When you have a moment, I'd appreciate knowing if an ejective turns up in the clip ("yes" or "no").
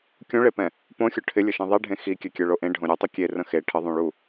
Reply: no